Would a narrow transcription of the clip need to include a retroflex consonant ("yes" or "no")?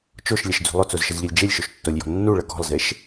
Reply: yes